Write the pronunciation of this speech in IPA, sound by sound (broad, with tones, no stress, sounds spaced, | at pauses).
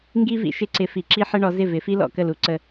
ŋ ɡ i˥ v ḭ˧ ʃ ɪ˧ ǀ ɪ˩˥ f i˩ ǁ i˥ ħ ə˥ ɳ ɔ˩˥ z ɪ˥˩ v ɪ˩˥ f i˥ l ɔ̰˥˩ k ə˥˩ l u˩˥ ǀ ə˧